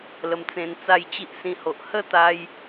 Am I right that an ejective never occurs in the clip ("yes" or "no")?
yes